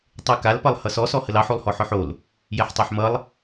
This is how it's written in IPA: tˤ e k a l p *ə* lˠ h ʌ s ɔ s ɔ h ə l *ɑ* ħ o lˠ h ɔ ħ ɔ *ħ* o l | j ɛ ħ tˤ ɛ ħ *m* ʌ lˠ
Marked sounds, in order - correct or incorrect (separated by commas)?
incorrect, correct, correct, correct